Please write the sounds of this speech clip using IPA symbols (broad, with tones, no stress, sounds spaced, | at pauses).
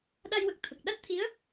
ɗ a˧ j w ə˨˩ k̚ t̪ʰ ə˨˩ k̚ ɗ a˦˥ t̚ t̪ʰ i˧˥ ə̯